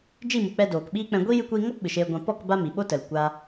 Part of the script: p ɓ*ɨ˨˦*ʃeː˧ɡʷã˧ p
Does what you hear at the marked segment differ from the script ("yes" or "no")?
yes